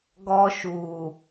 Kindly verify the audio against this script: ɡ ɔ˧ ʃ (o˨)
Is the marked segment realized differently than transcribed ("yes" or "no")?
yes